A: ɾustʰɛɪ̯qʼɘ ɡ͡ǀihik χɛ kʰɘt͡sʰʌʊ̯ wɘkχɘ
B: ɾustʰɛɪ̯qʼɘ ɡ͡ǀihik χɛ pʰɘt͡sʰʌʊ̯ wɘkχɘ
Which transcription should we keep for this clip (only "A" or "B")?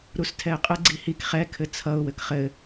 A